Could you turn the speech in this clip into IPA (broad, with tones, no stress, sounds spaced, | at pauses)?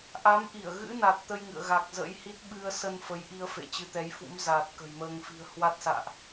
ʔ a˨˦ m ʔ i˧˩ ə̯ ɣ ɨ̰˧˥ n a˨˩ t̚ t̪ ə˧ j ŋ ɨ̰˧˨ ə̯ ɣ a˨˩ k̚ z ə̰˧˥ j h i˦˥ t̚ ɓ ɨ˧ ə̯ s ə˧ n f ə˨˦ j ʔ i˧ ə̯ f ḛ˧˨ t͡ɕ ɨ˨˦ t̪ ɛ˨˦ j f ṵ˧˥ m z aː˨˩ t̚ k ə̤˨˩ j m əː˧ ŋ f i̤˨˩ ə̯ h w a˦˥ t̚ s a̰ː˧˨ ʔ